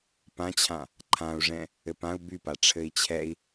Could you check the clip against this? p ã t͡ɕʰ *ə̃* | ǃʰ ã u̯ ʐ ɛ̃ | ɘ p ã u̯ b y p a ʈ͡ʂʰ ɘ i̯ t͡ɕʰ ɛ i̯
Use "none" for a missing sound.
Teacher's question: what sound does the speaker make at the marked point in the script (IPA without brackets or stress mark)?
ã